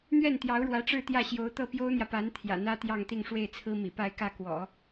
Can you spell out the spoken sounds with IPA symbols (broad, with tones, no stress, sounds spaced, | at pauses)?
n̪ ɥ ɛ˥˩ n t̪ j ɑ˧˥ ʊ̯ ɻ w ä˧˥ ʈ͡ʂ ɻ̩˥˧ t̪ j ä˥˩ ɕ j o˧˥ ʊ̯ t̪ ɤ˥˩ p j o˥ ʊ̯ n̪ j ä˨ p a˧˥ n t̪ʰ j ä̰˨˩ n̪ ä˥ t̪ j ɑ˥˧ ŋ t̪ i˥˧ ŋ ʂ w e˥˩ ɪ̯ t͡sʰ ɹ̩˥ m ḭ˨˩ p a˥˧ ɪ̯ k ä˥˩ k w ɔ̰˨˩˦